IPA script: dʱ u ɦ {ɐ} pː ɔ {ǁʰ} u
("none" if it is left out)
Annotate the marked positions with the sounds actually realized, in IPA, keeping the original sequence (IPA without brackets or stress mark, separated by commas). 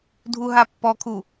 a, kʰ